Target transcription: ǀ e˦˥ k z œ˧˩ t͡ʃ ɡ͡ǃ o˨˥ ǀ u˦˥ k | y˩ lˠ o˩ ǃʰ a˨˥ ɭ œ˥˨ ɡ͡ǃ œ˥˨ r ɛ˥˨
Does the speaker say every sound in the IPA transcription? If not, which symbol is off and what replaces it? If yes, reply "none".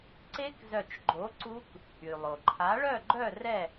none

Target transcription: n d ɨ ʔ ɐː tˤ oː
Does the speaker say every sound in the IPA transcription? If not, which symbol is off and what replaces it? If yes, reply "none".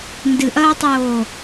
none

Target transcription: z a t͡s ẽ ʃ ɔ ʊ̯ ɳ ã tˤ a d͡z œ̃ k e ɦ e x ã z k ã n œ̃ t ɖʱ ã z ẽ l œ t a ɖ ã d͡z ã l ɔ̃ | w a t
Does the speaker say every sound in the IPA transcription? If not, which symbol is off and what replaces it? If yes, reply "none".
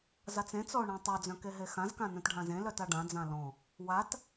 ʃ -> t͡s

